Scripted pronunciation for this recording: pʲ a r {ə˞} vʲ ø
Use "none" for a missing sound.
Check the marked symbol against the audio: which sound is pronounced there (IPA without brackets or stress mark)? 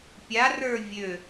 ə˞